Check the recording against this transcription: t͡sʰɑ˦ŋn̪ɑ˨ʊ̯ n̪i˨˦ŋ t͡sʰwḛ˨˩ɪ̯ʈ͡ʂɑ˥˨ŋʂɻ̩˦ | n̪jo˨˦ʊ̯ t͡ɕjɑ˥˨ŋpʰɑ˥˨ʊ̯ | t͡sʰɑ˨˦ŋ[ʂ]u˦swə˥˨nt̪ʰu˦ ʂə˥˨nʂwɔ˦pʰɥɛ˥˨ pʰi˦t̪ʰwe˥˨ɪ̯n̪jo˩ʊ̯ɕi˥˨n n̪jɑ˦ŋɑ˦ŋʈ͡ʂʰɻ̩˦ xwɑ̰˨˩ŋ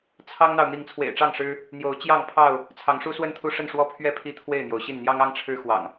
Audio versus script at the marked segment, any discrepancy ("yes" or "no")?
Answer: no